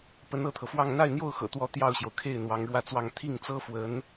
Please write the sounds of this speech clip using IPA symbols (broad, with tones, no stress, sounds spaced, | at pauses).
p ə˧˥ n ɤ˥˩ t̪ʰ ɤ˩ f w ɑ˥˧ ŋ n̪ a˥˧ ɪ̯ n̪ j o˥˩ ʊ̯ x ɤ̰˨˩ t̪ w ɔ˧˥ t̪ j ɑ˥˩ ʊ̯ ɕ j o˩ ʊ̯ kʰ e˥˩ ɪ̯ n̪ w ɑ˧˥ ŋ ɻ w ä˥˧ t͡s w ɑ˥˧ ŋ t̪ʰ i˥˩ ŋ t͡s ɤ˥ f w ə˧˥ n